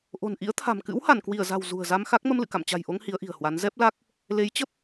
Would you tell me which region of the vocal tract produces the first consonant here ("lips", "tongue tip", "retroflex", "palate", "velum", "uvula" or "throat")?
throat